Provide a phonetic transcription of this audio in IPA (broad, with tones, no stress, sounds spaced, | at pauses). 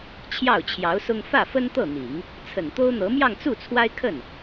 t͡ɕʰ j ɑ˥˩ ʊ̯ t͡ɕʰ j ɑ˧˥ ʊ̯ s ʊ˥ ŋ f ä˥˩ f ə˥ n t̪ ɤ˥˩ n̪ i˨˩˦ ŋ | t͡sʰ ə˨˩ n t̪ o˥ ʊ̯ n̪ ɤ˧˥ m j ɑ˥˧ ŋ t͡s u˥˩ t͡sʰ w a˥ ɪ̯ kʰ ə˥˩ n